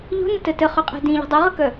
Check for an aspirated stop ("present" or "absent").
absent